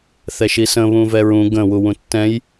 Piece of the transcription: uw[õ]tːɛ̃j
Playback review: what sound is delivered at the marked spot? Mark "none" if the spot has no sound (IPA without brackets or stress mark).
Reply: ũ